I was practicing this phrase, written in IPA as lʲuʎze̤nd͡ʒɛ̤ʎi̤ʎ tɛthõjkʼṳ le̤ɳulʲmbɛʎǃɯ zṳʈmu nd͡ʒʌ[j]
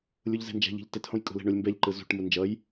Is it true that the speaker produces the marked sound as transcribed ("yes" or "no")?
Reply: yes